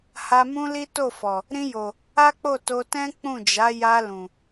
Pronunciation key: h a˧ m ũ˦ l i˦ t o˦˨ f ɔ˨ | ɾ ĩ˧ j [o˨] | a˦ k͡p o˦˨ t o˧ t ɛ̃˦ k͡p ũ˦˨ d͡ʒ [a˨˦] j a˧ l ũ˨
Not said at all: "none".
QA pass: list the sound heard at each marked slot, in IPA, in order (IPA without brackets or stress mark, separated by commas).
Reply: o˨, a˨˦